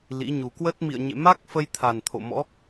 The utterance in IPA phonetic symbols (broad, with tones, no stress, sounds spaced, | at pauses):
l ḭ˧˥ ɲ u˨˩ k w ə˦˥ t̚ m ḭ˧˨ ə̯ ɲ ḛ˧˨ m a˦˥ k̚ f ə˧ j t̪ʰ a˨˩ n t̪ʰ o̰˧˨ m ɔ̰˧˥